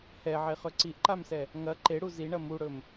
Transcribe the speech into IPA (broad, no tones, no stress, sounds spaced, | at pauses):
h ɛ ʕ e χ ɵ ǀ i ʔ ǃ a m s ɛ | ŋ ɐ ǃ e ɽ u z i ɳ ɐ m u ɽ ɵ m